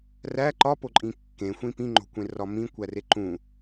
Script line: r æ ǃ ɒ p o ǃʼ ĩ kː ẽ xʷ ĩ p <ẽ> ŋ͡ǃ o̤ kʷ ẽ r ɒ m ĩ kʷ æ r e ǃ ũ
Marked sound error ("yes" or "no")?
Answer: yes